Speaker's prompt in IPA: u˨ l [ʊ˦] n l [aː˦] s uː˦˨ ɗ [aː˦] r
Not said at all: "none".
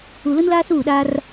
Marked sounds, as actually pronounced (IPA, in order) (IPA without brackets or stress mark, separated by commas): ʊ˦, aː˦, aː˦